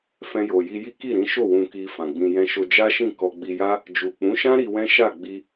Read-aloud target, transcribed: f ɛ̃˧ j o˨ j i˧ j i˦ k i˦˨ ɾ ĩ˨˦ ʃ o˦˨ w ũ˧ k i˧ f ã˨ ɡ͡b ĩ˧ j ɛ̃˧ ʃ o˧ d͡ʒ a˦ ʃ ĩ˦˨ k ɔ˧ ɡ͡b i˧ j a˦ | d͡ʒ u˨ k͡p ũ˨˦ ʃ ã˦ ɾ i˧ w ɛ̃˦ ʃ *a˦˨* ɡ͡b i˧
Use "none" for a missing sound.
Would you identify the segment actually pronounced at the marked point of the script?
a˦˨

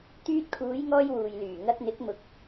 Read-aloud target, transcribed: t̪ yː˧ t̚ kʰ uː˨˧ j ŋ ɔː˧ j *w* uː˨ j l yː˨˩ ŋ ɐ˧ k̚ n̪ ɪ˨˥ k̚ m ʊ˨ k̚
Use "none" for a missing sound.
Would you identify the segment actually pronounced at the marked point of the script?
w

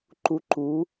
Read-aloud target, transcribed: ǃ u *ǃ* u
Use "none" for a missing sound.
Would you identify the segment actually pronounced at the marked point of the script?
ǃ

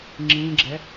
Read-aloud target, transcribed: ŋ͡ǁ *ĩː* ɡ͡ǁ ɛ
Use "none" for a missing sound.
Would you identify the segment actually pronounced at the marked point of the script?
ĩː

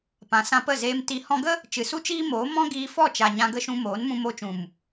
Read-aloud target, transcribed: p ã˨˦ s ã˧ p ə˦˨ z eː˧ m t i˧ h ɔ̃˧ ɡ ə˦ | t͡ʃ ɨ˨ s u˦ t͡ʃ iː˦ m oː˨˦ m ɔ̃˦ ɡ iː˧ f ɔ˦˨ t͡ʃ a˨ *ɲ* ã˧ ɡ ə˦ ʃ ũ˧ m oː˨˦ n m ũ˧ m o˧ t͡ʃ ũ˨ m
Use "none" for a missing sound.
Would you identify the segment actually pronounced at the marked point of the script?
ɲ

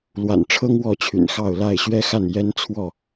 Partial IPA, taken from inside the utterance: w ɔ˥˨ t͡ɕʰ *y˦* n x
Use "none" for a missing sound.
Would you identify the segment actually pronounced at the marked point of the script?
y̰˨˩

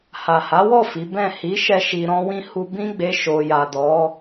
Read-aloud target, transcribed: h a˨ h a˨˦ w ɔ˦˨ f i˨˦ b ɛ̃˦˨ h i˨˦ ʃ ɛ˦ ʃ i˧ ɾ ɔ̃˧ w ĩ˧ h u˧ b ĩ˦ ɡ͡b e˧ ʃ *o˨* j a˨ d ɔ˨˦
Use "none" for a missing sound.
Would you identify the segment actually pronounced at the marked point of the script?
o˨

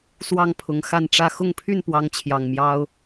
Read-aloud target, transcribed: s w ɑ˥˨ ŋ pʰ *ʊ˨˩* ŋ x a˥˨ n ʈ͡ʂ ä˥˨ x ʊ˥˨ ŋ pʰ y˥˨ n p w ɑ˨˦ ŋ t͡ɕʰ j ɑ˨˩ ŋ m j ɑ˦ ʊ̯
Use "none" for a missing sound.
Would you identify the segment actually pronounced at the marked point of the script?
ʊ˨˩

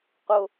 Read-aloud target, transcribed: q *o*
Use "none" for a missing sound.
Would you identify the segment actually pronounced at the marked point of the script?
o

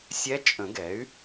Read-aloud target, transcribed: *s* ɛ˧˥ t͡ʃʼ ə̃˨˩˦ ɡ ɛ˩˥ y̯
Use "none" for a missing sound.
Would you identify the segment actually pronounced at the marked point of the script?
sʲ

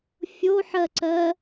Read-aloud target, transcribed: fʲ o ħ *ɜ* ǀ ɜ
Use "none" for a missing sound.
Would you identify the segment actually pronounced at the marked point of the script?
ɜ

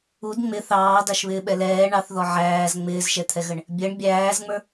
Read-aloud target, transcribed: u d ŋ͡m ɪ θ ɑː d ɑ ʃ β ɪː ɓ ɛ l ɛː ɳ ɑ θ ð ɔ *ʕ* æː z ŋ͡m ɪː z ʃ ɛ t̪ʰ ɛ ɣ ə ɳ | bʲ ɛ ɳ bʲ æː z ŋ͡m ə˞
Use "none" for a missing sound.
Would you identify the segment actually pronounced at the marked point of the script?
ʕ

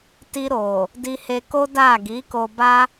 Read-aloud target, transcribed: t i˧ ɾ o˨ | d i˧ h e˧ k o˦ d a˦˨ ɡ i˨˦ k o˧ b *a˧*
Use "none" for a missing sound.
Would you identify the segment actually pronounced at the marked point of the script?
a˦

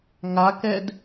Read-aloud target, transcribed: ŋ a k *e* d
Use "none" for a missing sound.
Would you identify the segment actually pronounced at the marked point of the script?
ɛ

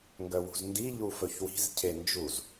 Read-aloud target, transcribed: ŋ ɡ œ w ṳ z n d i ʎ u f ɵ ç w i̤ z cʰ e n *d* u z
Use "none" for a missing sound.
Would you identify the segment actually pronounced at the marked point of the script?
d͡ʒ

